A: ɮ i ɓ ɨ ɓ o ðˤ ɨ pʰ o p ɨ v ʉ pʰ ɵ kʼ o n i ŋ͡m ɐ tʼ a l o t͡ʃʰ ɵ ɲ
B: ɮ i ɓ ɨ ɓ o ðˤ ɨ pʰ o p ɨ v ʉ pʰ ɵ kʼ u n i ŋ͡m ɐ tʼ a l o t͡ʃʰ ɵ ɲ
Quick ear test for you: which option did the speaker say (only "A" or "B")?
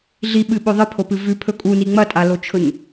B